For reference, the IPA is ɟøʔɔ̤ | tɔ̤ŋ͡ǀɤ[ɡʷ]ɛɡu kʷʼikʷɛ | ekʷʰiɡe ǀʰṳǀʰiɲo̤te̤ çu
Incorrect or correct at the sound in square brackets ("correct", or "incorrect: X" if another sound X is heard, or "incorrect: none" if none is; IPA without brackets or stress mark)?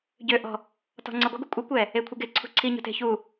correct